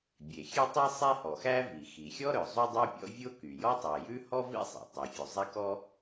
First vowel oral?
yes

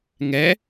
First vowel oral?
yes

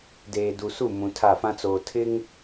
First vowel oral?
yes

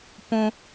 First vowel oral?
no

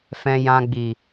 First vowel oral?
no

